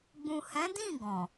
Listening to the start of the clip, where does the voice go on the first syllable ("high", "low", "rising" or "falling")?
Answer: low